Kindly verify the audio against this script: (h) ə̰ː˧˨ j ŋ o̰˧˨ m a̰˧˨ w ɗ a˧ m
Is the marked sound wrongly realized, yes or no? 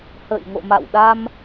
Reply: no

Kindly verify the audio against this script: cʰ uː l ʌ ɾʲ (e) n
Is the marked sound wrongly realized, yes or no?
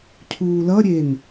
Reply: no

